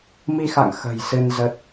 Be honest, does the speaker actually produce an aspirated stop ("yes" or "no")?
no